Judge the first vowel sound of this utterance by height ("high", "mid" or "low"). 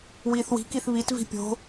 high